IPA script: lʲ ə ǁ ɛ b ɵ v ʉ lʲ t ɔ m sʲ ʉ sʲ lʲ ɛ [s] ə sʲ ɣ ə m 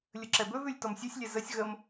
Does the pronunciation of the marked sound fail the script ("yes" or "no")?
yes